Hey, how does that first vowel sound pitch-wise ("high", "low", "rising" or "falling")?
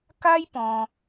high